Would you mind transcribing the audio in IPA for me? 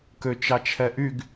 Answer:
køt͡ʃɑt͡ʃʰɛʔyɡ

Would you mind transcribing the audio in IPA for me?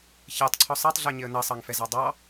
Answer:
çɛtˤǀʰɔ sˤɑtˤɮɜɲɪə̯ nʌsˤɑŋ fɛzɑdˤɑ

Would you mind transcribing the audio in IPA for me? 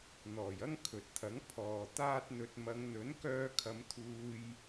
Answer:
n̪ɔː˨˩jɐ˥ŋ kʰɵ˨t̚t̪ʰɐ˨˥ŋ pʰɔː˨ t̪aː˥t̚n̪ɵ˧t̚ mɐ˨˧ŋn̪ɵ˨˥nkœː˧kʰɐ˨˧m t̪ʰuː˧j

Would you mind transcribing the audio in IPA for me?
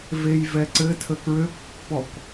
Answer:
vejvɛǀɘ tʰəkɹøkpːɔk

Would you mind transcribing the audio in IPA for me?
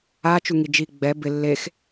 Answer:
a t͡ʃuŋid͡ʒi ɡ͡bɛ bɪ lːex

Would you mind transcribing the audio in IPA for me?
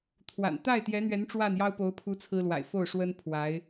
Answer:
t̪ʰwa̰˨˩n t̪a˥˩ɪ̯t̪jɛ˧˥n̪ɥɛ˧˥n ʈ͡ʂwa˥˩njɑ˥ʊ̯po˧˥ʊ̯pʰu˧˥ t͡sʰɹ̩˥lwa̰˨˩ɪ̯ fo˥˩ʊ̯ʂwə˥n pʰwa˧˥ɪ̯

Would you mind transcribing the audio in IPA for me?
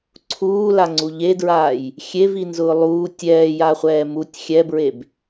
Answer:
ǀʰuːlaŋ͡ǀu ʎedɹaːj | xʲevinzʊː lˠuː tʲɛːjaχʷɛː mutʲ xʲɛbɹeb

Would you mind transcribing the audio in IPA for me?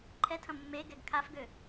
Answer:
ǃʰɛtʰɐ̃ mːeɡɛɡ kʰafɡø

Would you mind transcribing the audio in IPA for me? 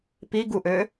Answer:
piɡuʔø

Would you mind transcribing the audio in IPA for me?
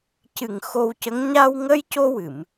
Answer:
cɨ˨˩ŋ xo˧wcə˧˥ŋ ɲa˧wŋə˧˥j co˧wɨ˨˩˨m

